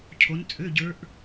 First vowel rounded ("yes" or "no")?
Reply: yes